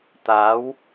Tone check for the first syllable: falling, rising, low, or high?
rising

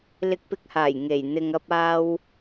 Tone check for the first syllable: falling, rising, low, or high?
low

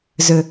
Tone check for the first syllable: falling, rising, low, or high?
low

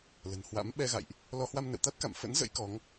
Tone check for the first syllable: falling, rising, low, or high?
low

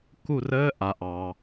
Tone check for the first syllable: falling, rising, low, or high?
falling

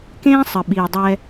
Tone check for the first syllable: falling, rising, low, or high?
high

